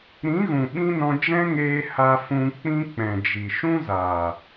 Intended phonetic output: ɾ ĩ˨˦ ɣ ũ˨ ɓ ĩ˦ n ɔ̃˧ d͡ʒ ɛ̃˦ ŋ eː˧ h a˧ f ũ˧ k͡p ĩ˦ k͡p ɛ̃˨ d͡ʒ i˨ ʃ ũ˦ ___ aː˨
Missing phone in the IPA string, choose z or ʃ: z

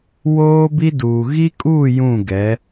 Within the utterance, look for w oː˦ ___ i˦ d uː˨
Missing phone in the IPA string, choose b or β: b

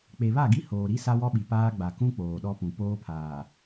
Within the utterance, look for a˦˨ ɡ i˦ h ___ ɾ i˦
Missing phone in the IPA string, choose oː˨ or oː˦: oː˨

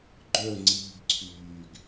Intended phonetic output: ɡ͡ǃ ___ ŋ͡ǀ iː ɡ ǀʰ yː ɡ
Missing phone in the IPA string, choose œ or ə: œ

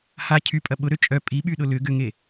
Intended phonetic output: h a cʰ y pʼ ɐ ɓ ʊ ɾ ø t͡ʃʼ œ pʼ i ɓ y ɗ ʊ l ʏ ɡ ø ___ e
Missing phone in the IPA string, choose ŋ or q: ŋ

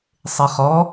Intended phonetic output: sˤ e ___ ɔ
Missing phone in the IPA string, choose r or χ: χ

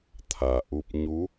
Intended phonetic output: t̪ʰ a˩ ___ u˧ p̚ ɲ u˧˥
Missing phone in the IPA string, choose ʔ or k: ʔ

